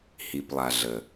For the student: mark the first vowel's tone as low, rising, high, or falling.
low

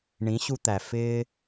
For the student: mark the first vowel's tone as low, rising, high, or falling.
rising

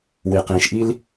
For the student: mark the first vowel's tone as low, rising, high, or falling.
low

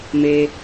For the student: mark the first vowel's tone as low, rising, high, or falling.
high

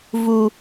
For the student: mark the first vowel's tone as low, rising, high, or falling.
high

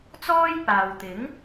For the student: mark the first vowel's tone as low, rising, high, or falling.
high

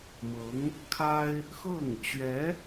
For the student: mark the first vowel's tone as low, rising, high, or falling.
rising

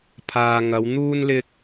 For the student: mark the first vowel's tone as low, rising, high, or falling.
low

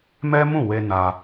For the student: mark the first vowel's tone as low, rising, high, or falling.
high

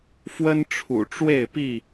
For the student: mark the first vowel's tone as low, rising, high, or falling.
high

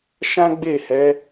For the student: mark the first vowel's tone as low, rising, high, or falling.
high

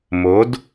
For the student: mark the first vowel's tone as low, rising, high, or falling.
rising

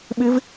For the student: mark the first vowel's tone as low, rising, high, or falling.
rising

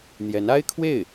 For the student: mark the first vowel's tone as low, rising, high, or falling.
rising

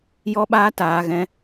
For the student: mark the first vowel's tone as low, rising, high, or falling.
high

